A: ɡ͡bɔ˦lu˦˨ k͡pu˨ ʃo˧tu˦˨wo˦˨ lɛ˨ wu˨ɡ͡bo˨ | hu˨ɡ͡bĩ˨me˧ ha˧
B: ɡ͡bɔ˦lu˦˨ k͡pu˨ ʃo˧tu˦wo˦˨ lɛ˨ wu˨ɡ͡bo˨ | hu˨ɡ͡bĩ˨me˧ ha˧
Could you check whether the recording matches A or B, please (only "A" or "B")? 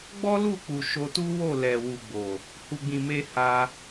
B